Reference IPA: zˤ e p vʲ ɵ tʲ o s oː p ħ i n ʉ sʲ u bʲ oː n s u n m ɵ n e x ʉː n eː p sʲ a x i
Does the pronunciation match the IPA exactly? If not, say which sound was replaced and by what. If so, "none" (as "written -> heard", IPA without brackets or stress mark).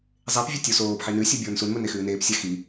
none